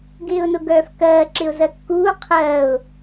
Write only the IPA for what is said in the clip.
ɡɪːʊ̯nʊɡœːfkɜː ǁɪʊ̯zɜkːuː qʰɜːʊ̯

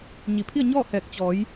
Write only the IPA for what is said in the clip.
ɲi˩˧pʰi˥˨ə̯ ɲɔː˥˨hɛː˧˩k̚ t͡ɕɔː˩˧j

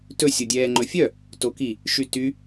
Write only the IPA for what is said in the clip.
tɵ sʲodʲɛːŋ͡ǃɵfʲœ | toki | ʃyty

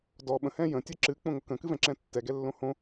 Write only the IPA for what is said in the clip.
dɔ ɓə̃ hɛ̃jə̃ tʲɛǁɨ k͡põŋokə̃ kɨvɛ̃ǁɛ̃tːɛ ɡɛlːõhõ

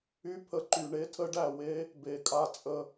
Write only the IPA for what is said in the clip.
y˦pʰə˧ǃy˨ ɳe˦tʰə˦ɖæ˦˨we˦ | be˨kʼa˧t͡sʼə˧

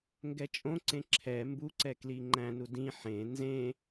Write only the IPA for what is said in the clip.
ŋɡɛt͡ʃʼõǀẽ ǁʰɛ mbuǀɛ kliŋ͡ǃæ̃nu dĩ ħẽ nzẽ

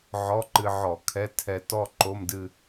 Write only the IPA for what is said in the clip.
ʕɔ˧˥˧ǃɨ˧ʕɔ˧˩˧ kʰɛ˧˥˧tʰɛ˧ tɔ˥˧ ǃo˧˥˧mdɨ˥˧

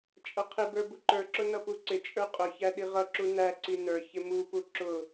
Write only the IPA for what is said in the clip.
t͡ʃʼʌqʰɪbə˞ buǃə˞ǁʊ nʌpuǀɪt͡ʃʼə˞ qʼʊçæ ɗiʁʌǁu næǀi nə˞ çɪmupu ǁʊ

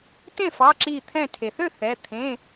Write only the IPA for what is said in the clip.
tẽ˥˩fɑ˩˧˩ǁiː˧˩ t̪ʰɛ̃˧˩tʰe˩θø˥˩ θɛ˩˧˩ t̪ʰẽ˩˧˩

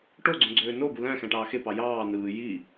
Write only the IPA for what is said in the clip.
ʈoɡ͡ǀõ ɡ͡ǀøːnobu læ̃ xæ̃ʈɑːxepɑ jɑː nɯː ji

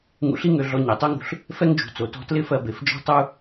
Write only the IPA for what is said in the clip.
ŋṵ˧ɬi˥ŋø˧ ɮɔ˧ɲe˩tˤø˥ŋṳ˧ɬ | fɛ˥ŋd͡ʒṳ˩t͡so˩tɔ̤˧ tlɪ˥fɜ˧be˩fd͡ʒɔ̤˥ tˤu˥

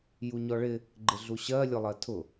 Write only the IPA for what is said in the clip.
juɲɔɭɪ | ɡ͡ǃɪɮuɕɜ lʲʊlˠɜtʰʊ

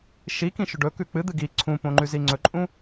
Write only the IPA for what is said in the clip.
ʃikĩʃɵ ɖɵkʉ k͡pɨd̪ɨ ɡi ǀʰũpõŋ͡ǃʉzi ŋ͡ǀɵǃʼũ

